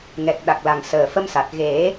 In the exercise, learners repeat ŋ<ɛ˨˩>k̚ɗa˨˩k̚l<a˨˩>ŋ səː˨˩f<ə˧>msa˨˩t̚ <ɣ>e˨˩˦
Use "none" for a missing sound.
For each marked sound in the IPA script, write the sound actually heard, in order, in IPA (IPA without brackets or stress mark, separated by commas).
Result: ɛ˨˩, a˨˩, ə˧, ɣ